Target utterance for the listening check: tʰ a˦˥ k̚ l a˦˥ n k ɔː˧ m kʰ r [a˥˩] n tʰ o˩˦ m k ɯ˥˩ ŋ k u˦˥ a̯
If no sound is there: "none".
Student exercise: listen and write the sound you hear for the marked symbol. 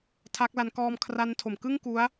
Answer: a˦˥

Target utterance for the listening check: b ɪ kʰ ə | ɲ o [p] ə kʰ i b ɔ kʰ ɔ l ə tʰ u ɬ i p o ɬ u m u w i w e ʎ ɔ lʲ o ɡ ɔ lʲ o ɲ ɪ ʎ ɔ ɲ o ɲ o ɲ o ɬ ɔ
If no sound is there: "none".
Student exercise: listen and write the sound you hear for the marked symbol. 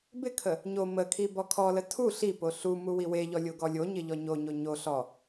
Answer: m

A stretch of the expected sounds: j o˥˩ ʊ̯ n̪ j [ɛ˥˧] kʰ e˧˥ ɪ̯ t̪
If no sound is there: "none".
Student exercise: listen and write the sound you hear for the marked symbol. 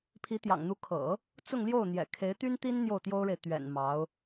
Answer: ɛ̰˨˩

